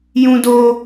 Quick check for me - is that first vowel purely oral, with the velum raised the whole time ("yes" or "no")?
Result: no